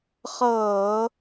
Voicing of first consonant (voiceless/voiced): voiceless